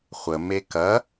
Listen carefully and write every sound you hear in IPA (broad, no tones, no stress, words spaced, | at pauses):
χʷəme kɐ